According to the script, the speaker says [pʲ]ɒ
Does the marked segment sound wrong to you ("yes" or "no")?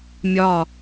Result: yes